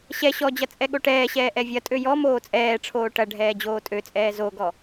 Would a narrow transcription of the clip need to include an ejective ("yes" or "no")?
yes